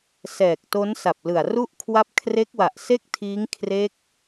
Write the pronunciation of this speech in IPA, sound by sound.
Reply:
s ɛː˨˩ k̚ t o˦˥ n s a˨˩ p̚ l ɯ˨˩ a̯ r u˥˩ ʔ kʰ w a˦˥ p̚ kʰ r e˦˥ k̚ w a˨˩ ʔ s e˥˩ k̚ tʰ iː˦˥ ŋ kʰ r e˦˥ k̚

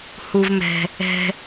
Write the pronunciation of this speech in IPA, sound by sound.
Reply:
h u˥ v m ɛ̤˥ | ɛ̤˥

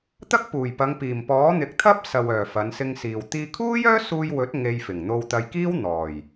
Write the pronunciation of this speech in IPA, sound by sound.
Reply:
t̪ ɐ˥ k̚ p uː˨˩ j p ɐ˨˧ ŋ p iː˨˩ m p ɔː˨˥ n̪ ɪ˨˥ k̚ t̪ʰ ɐ˥ p̚ s ɐ˨ w œː˨˩ f ɐ˨˧ n s ɪ˧ ŋ s iː˨ w t̪ iː˧ kʰ uː˥ j œː˥ s uː˧ j w ɵ˨˥ t̚ ŋ e˧ j f ɪ˨˩ ŋ n̪ o˧ w t̪ ɐ˧ j k iː˥ w n̪ ɔː˨˩ j

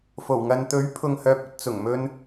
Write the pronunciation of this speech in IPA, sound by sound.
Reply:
f o˨˩ w ŋ ɐ˨ n t̪ ɵ˨˥ ɥ pʰ ʊ˨ ŋ h œː˨ p̚ ɵ˧ t̚ t͡s ʊ˨˩ ŋ m ɵ˧ n

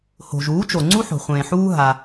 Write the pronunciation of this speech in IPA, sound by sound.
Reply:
h o̤˨ ʒ uː˨˦ t͡ʃ o˨ ŋ͡ǀ u˦ ħ o̤˨ χʷ ẽː˨ ħ uː˦ ɦ a˧

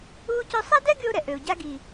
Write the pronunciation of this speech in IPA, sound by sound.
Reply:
uː˥ c œ˥ sˤ ɛ˥ d ɛ˥ ɡ y˧ ʊ̯ ɾ ɛ˩ ʔ ø˩ ʊ̯ ɟ a˧ ɡ iː˩

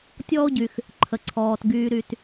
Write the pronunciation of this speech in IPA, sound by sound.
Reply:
tʲ ɔː˥ o̯ ɟ y˨ x | ǃʰ ə˩ ǀʰ ɔː˩ t ɡ yː˨ ɾ y˨ t

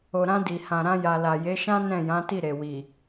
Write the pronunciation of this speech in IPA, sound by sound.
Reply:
o˨ ɾ ã˧ d i˨ h ã˨ ɾ ã˧ j a˨ l a˨ j e˨˦ ʃ ã˦ n ɛ̃˦˨ j ã˨˦ t i˦˨ ɾ e˨ w i˨

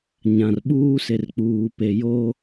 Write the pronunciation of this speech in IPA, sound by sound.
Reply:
ɲ ã˨ r ɓ uː˦ s e˨ r k͡p uː˨ p e˨ j o˦

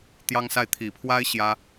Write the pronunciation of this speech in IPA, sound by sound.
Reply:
t̪ j ɑ˥ ŋ s a˥˩ ɪ̯ t̪ʰ i˨˩ pʰ w a˥ ɪ̯ ɕ j ä˥

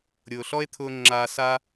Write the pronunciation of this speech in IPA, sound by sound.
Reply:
ɾʲ ʊː˩ ɬ ɔ˥ e̯ t̪ʰ ʊː˧ ŋ͡ǁ aː˩ s a˧

